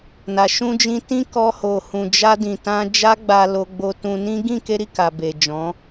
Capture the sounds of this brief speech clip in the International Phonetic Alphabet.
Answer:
na˨ ʃũ˧d͡ʒĩ˧ tĩ˦kɔ˧ ho˨ hũ˨d͡ʒa˧dĩ˨tã˧ d͡ʒa˦ɡ͡ba˧lo˧ɡ͡bo˧ tũ˧ nĩ˦ ɡĩ˦˨ke˧ɾi˨ ka˨be˨d͡ʒɔ̃˨˦

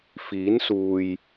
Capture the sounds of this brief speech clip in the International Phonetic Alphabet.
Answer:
fiː˨˥nsuː˨j

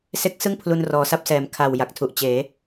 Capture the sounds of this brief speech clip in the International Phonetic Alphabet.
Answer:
se˦˥k̚sɯ˥˩ŋ pʰlu˧nrɔː˨˩sa˥˩p̚sɛː˨˩m kʰa˨˩w ja˨˩k̚tʰu˨˩ʔ t͡ɕeː˩˦

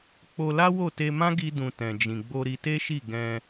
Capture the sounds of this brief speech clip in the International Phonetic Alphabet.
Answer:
k͡po˧la˦ wo˦˨te˧mã˦ ɡi˦dũ˧ tɛ̃˨d͡ʒĩ˨ɡ͡bo˧ ɾi˧te˦ʃi˦˨ ɡɛ̃˧

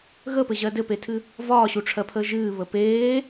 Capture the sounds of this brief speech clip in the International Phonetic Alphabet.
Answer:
ɣəpɘʑɜ dɘpetʰɨ | vɒːɕuʈ͡ʂʰɜpʰəː ʒɨːβə peː

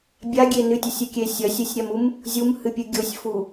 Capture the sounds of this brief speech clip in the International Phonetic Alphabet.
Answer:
bʲaɡʲe nɨtʲɐsʲʉkʲe sʲɐsʲɨsʲɾʲamum | zʲumhɨpʲɨ ɡʲosʲfu

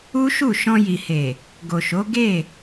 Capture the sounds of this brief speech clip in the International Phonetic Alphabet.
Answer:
u˦ʃu˦˨ ʃɔ̃˧ji˨he˨ | ɡo˨ʃo˨˦ ɡe˦˨

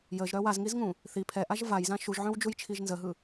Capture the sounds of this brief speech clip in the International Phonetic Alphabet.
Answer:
jəʒɾœ wazŋizŋũ | θi pʰɛʔaʒ vajzã ʃuʒʕœ̃wd͡ʒujt͡ʃʰiʒ nzəɦɯ

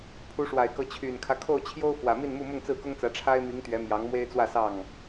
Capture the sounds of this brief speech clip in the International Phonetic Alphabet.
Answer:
pʰu˨˦ʂwa˨˩ɪ̯kɤ˨˦ t͡ɕʰy˨˩nkʰä˦kʰo˥˨ʊ̯ t͡ɕʰjo˦ʊ̯fwä˨˩ mi˥˨nmu˥˨ mʊ˥˨ŋt͡sɹ̩˥˨kʊ˦ŋt͡sä˨˦ ʈ͡ʂʰa˦ɪ̯mi˨˦ŋt̪ɥɛ˨˦ mjɑ˨˦ŋmwe˦ɪ̯ t͡swä˥˨sɑ˥˨ŋ

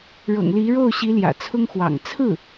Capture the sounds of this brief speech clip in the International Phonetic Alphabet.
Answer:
ɻɤ̰˨˩ŋli˧˥ɻo˥˩ʊ̯ɕi˧˥ ljä̰˨˩t͡sʰʊ˥ŋxwɑ̰˨˩ŋ t͡sʰɹ̩˥˩

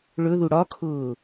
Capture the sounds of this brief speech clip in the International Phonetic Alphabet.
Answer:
ɭɵðu ɽɒkʰʊː

